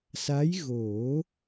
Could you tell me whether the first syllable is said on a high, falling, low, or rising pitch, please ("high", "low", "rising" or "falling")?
rising